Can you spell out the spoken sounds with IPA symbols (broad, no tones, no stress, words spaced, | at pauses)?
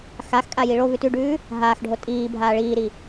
xaxkʼa jiɭovʉ tʉɖʉː | ɦaːxɖʱo tʼiː bʱaːɭiːɾi